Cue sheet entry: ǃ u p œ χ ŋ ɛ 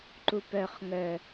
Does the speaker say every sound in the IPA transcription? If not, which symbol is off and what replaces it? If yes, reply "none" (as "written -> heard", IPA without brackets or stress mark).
ɛ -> œ